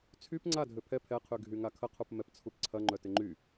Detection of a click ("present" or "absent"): present